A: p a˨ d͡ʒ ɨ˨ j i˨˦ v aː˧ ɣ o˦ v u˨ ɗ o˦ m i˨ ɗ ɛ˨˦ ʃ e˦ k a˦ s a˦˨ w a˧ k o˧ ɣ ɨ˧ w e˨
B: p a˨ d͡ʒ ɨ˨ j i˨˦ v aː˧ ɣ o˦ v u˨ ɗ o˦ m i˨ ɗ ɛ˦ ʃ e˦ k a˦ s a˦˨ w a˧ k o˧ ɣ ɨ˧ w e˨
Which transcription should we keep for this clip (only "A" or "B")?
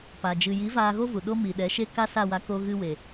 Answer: A